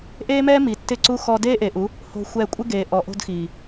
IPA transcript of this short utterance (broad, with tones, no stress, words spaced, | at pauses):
ʔeː˦mɛː˦mi˨ tːɪ˦ǀu˦ xɔ˧deː˦ʔe˨ʔu˨˦ | ho̤˧ xʷɛː˧kʷʼɪ˦ ɡeː˨ʔɔ˨ ʔo̤˧dxiː˨